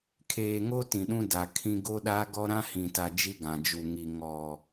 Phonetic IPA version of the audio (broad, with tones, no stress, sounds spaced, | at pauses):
kʰ eː˨ ŋ o˦ t ĩ˨ ɗ ũ˦ d a˨ kʰ ĩ˦ ɡ o˦ ɗ a˦ ɡ ɔ˦ ɾ ã˦ h ĩ˨ t a˨ d͡ʒ i˦ ɡ ã˨ d͡ʒ u˨ ŋ i˨ ŋ ɔ˨